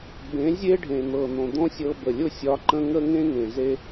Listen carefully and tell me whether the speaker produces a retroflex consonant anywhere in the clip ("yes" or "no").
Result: yes